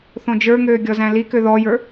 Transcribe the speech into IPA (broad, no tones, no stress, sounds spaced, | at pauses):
θ õ d͡ʒ ə˞ ŋ øː ɡʲ ɔ z æ̃ l i k ø ð ɔ j ə˞